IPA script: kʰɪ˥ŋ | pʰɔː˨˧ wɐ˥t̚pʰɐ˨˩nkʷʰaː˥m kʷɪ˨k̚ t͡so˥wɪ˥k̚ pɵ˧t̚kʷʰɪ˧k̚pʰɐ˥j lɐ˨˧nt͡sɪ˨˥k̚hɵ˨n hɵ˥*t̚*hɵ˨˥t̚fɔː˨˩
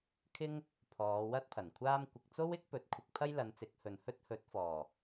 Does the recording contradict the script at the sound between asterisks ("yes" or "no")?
no